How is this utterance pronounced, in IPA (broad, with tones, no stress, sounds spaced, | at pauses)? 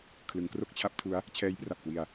kʰ l ɯ˩˦ ŋ k r o˥˩ k̚ t͡ɕʰ a˦˥ p̚ tʰ u˦˥ a̯ | t͡ɕʰ ɛː˦˥ j p r a˨˩ p̚ k w i˧ a̯